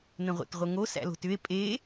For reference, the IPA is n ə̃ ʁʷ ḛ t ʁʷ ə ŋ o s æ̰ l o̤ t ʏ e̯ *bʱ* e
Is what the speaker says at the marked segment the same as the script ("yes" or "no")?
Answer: no